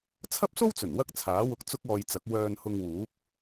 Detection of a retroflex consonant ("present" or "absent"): absent